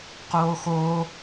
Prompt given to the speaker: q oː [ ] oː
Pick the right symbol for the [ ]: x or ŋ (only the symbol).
x